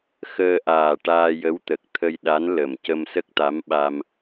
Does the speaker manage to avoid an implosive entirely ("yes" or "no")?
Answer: no